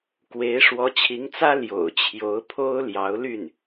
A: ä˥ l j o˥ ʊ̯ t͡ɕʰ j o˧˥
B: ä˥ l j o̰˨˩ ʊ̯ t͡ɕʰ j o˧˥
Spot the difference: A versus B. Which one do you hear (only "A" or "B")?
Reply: B